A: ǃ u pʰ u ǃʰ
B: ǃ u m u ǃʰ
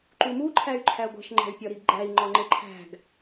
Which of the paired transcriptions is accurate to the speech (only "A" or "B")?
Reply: B